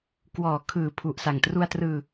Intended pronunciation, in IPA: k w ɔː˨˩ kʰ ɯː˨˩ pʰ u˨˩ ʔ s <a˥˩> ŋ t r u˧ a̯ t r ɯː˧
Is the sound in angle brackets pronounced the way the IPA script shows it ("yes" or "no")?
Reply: no